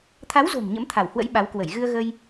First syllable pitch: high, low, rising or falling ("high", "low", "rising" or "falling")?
rising